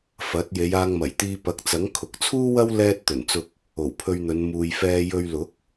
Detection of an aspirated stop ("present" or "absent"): present